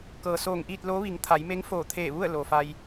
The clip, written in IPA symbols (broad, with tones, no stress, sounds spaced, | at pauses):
k ɤː˩ s oː˧˩ ŋ ʔ iː˥˨ t̚ l oː˧˥ ʋ i˩˧ ŋ t̪ʰ a˩˧ j m e˧˥ ŋ f oː˧˩ t̪ʰ eː˧˩ ʋ u˥˨ ə̯ l o˩ f a˧ j